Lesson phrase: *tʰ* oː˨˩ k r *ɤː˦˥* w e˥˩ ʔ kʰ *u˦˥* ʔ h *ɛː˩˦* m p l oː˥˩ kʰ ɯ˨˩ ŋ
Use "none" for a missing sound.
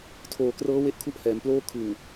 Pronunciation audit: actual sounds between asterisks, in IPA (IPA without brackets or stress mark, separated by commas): tʰ, ɤː˦˥, u˦˥, ɛː˩˦